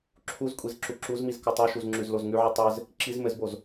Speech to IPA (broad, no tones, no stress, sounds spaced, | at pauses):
ǁʰ u z kʷʼ i z ǁ u ǁ u z m i z k o tˤ o ʃ u z ŋ͡ǁ ʉ z l o z ŋ ʉ ʕ i tˤ ɘ z | ǁ i z m ɘ z b o z